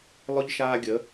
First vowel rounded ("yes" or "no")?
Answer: yes